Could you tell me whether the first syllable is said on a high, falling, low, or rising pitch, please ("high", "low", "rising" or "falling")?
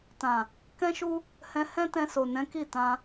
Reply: low